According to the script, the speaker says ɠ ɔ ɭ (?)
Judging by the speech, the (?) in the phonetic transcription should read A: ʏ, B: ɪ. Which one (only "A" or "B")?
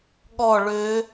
A